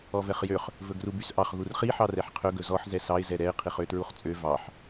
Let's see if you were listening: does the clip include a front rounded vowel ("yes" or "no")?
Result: yes